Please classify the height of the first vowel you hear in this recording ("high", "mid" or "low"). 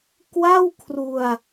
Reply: low